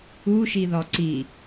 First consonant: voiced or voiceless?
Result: voiceless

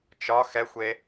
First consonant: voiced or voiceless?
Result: voiceless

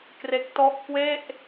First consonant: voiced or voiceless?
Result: voiceless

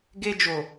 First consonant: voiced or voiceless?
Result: voiced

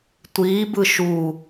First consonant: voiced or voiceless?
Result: voiceless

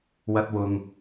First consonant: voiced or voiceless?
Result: voiced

